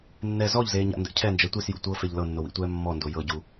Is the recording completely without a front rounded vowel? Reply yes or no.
yes